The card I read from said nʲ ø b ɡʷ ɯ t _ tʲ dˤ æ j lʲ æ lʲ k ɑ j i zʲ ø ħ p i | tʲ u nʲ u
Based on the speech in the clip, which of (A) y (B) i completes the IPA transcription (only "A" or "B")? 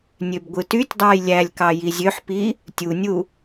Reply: A